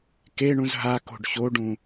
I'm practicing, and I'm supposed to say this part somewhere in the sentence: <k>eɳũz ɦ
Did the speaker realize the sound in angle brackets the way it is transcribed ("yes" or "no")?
yes